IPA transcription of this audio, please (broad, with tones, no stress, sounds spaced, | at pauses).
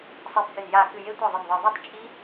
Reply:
sˤ e˧˩ p h ɘ˧˩ n j a˧˩ k ɨ˧˩ j e˦˥ tʷ æ˥˩ ðˤ ɨ˧˩ n ðˤ ɨ˧˩ ðˤ i˥˩ tˤ t͡ʃʼ i˦˥